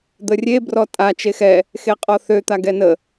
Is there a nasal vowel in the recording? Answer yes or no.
no